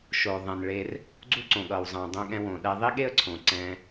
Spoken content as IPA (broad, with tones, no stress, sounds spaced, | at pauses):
ʃ o˩ ðˤ ɛ̃˩ n ɭ e˧ r | ɡ͡ǀ u˥ ǀ õ˩ ɠ ʌ˩ w zˤ ã˩ dˤ õ˧ ɠ ɛ̃˧ w õ˩ ɗ ɛ˧ ðˤ i˥ ɠ e˥ ə̯ ǀʰ õ˩ ǀ ɛ̃˧